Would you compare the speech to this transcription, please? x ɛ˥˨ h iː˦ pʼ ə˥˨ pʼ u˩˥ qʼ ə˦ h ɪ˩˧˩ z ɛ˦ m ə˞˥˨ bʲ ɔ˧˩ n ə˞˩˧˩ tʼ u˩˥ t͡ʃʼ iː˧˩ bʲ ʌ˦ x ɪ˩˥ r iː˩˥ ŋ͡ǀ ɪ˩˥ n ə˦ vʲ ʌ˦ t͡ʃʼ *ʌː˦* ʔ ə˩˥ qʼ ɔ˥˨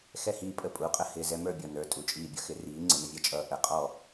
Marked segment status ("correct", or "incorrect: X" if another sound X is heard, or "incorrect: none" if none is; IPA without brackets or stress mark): correct